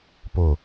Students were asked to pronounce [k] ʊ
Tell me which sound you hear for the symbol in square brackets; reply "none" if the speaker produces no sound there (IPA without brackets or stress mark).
p